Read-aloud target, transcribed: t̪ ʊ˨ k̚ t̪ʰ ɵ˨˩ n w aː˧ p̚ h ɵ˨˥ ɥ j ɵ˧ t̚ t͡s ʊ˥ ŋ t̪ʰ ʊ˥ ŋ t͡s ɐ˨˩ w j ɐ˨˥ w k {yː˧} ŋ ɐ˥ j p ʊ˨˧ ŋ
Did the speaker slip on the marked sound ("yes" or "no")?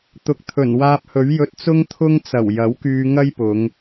no